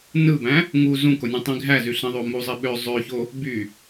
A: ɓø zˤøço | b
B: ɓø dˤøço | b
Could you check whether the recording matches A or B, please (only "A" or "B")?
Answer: A